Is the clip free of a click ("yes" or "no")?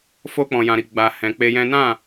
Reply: yes